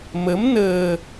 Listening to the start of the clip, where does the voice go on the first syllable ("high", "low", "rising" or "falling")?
rising